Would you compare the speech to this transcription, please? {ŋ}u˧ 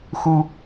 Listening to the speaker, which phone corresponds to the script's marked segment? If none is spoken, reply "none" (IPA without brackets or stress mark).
x